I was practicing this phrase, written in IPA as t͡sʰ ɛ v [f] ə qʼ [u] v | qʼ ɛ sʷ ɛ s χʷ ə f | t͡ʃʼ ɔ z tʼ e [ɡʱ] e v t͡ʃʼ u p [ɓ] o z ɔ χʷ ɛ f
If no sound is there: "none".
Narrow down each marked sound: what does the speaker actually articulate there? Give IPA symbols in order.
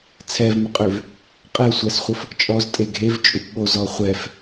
m, ø, ɡʱ, ɓ

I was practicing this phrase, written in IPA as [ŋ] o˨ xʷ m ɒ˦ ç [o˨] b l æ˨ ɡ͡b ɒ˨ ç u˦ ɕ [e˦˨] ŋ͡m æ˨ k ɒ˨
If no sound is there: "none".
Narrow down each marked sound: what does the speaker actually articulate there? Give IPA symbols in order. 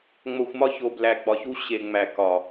ŋ͡m, o˨, e˨

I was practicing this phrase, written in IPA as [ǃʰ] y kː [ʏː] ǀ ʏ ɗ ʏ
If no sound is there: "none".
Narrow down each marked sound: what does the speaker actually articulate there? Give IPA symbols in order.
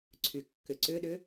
ǀʰ, ʏ

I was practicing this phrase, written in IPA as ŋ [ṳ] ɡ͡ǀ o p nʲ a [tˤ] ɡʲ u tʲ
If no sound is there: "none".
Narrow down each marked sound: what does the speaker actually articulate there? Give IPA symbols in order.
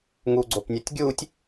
u, tʲ

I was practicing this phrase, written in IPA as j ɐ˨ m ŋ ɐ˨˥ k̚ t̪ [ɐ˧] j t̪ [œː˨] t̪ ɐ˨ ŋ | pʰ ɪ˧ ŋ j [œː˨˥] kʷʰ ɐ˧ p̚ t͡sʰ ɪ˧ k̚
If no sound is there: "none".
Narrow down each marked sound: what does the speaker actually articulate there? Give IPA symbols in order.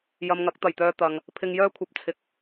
ɐ˨˩, œː˧, œː˥

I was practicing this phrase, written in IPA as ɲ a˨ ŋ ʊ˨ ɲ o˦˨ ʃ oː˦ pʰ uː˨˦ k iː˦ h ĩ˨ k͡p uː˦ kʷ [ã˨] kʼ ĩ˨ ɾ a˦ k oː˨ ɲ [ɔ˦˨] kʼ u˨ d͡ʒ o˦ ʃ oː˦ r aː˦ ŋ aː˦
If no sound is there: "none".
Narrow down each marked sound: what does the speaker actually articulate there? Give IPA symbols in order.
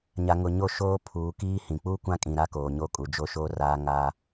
ã˦, o˦˨

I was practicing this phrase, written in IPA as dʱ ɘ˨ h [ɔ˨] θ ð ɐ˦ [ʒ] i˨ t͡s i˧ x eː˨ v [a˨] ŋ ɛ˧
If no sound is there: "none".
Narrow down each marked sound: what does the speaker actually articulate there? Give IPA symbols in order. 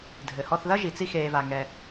ɔ˧, ʒ, a˨

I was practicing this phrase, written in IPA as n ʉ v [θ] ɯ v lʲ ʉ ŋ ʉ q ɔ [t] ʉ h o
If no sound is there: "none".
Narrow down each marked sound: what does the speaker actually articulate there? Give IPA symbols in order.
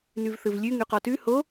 θ, t

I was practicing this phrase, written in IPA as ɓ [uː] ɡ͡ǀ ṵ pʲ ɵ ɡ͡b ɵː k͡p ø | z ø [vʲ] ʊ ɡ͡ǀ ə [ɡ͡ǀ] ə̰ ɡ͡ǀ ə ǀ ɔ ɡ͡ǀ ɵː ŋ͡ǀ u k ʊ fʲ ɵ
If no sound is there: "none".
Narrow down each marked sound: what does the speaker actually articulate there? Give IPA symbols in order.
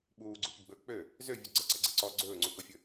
uː, vʲ, ǀ

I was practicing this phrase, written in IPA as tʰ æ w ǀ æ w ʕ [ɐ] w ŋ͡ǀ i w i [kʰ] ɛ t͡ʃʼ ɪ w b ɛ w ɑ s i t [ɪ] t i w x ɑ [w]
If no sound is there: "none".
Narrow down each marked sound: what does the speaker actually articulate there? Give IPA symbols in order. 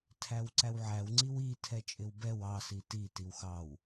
æ, tʰ, i, w

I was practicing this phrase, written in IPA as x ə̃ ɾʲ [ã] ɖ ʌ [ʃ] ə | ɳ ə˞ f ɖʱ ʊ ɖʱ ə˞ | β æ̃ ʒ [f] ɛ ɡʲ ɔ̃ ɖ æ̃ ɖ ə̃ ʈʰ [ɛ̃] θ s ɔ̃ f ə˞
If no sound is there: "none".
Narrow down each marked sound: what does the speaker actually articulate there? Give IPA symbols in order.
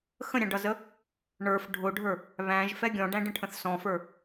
ɑ̃, z, f, ə̃

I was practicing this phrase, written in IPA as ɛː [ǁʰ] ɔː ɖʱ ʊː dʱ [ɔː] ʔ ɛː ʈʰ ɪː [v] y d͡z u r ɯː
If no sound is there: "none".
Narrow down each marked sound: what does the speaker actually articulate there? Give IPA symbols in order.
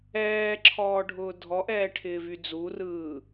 ǁʰ, ɔ, v

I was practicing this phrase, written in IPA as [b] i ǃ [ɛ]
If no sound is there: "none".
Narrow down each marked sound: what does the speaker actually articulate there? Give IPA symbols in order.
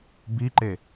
b, e

